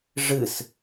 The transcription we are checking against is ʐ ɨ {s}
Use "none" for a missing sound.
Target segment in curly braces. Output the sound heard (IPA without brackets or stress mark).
s